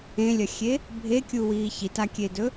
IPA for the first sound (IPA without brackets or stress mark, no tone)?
ẽ